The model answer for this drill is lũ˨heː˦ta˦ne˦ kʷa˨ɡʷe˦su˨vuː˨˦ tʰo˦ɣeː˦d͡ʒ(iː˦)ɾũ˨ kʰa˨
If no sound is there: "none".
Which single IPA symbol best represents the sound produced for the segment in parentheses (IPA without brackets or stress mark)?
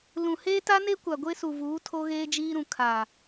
iː˦